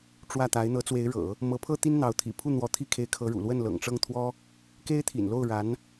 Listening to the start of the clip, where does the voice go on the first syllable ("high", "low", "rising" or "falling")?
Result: falling